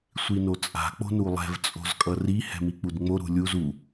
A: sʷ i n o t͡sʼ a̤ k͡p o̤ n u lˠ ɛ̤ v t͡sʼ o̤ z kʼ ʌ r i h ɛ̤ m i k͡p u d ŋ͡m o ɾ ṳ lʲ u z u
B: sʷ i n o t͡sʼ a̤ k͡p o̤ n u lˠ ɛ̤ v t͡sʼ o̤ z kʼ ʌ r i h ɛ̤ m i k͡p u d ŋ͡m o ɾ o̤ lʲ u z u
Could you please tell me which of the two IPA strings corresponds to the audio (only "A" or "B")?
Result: A